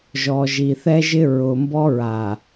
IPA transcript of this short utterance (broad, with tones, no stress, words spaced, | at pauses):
ʒɔ˨ʒi˨ θɛ˦ʒɪ˦ ɹʊ˨ mbɔ˦ɹa˨